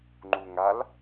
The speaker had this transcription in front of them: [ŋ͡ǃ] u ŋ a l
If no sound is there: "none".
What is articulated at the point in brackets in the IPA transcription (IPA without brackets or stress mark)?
ŋ͡ǃ